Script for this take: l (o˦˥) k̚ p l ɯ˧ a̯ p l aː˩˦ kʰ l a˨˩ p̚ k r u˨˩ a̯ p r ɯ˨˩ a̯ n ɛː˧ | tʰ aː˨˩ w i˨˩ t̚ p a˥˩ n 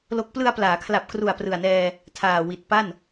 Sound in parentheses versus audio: correct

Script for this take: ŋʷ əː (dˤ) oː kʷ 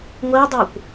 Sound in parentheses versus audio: correct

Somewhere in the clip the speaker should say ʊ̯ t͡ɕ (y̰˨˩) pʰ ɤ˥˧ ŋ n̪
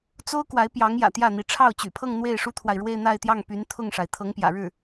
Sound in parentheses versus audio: correct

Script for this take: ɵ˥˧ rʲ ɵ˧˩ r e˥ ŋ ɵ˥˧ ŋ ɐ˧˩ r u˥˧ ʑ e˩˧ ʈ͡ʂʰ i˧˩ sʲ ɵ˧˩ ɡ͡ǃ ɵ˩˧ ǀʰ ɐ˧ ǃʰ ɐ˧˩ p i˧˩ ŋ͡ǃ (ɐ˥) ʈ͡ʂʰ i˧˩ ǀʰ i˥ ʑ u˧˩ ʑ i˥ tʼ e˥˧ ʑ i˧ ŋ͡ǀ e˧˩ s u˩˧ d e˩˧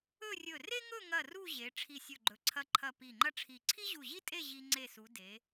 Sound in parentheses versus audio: correct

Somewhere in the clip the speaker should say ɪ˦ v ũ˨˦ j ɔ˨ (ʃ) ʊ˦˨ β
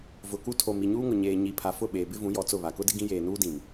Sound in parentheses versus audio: incorrect: t͡s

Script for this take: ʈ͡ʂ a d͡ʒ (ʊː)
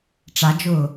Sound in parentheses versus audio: correct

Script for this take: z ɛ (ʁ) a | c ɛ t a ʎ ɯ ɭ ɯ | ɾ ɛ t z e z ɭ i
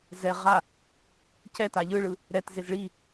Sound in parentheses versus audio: correct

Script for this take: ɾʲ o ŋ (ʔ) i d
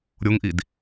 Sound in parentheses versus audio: correct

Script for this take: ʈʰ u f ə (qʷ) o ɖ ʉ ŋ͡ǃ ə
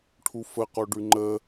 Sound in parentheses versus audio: incorrect: q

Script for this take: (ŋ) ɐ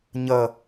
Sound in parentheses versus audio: incorrect: ɲ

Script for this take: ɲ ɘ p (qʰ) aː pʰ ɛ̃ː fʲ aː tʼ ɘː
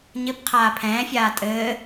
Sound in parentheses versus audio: correct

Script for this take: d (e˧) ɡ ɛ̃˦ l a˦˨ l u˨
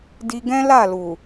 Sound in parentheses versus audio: incorrect: i˧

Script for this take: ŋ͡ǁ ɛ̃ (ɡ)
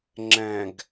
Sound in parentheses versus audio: correct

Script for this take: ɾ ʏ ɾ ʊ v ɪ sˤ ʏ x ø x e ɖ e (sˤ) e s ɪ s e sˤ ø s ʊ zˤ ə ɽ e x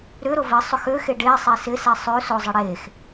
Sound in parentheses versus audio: correct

